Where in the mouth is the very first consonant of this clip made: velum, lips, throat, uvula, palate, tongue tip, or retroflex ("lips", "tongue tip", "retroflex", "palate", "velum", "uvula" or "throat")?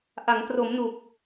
throat